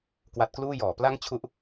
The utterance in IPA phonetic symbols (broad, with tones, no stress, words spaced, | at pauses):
kwa˦˥t̚kluː˥˩ jɔː˩˦ pla˥˩ŋt͡ɕʰu˦˥ʔ